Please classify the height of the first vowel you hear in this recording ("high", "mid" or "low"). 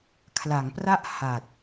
low